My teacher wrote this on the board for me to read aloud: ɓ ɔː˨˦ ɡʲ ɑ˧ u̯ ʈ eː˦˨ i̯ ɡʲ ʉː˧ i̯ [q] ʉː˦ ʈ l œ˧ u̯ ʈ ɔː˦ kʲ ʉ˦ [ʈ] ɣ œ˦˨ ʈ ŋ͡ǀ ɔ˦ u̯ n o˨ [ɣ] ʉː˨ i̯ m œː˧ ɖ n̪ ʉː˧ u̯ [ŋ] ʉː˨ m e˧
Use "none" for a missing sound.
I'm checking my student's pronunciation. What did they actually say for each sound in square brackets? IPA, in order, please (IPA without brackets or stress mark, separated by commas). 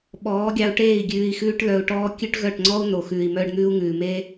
x, ʈ, x, ŋ